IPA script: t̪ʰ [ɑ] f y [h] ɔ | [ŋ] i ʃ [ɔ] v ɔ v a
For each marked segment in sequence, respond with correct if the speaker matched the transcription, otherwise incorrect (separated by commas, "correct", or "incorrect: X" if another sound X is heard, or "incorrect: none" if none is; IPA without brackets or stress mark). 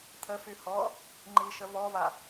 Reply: incorrect: ə, correct, incorrect: ŋ͡ǃ, incorrect: ə